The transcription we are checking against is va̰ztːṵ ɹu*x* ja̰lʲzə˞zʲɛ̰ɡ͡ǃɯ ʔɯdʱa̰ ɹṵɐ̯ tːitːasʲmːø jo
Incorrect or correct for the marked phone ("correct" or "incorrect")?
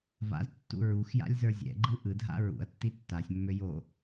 correct